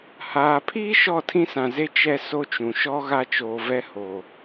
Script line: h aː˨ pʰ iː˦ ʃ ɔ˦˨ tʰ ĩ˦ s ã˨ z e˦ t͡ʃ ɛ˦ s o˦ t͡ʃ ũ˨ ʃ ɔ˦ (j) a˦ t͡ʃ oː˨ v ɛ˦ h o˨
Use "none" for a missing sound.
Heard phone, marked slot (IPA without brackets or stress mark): ɣ